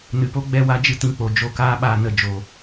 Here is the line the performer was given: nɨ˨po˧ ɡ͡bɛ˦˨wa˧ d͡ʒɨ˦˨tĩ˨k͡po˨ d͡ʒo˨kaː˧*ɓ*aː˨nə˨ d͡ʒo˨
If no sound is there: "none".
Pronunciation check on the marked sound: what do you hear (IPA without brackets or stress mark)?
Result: ɓ